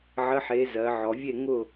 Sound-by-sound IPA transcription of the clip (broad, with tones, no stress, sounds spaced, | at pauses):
ʕ ə˧˥˧ ħ e˨˥ z ɜ˩˧ ʕ ɔ˩˧ vʲ e˥˨ ŋ ʊ˥˨